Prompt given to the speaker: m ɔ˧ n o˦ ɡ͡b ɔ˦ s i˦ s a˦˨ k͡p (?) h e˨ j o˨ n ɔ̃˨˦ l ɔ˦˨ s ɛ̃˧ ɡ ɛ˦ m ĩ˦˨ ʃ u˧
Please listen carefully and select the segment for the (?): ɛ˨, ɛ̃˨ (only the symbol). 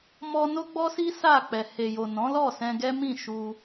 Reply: ɛ˨